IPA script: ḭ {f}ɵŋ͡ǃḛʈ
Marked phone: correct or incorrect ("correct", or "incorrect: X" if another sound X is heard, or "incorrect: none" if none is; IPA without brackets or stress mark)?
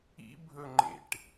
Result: incorrect: bʱ